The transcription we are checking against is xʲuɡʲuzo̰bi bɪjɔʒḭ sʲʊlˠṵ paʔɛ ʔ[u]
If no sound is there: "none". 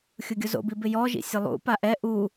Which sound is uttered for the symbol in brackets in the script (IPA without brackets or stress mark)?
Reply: u